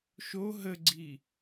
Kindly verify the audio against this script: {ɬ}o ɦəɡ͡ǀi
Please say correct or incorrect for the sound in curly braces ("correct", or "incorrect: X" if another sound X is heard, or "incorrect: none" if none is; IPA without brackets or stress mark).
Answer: incorrect: ʃ